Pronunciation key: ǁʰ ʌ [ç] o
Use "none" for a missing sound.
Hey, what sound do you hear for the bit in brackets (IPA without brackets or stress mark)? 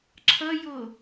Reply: j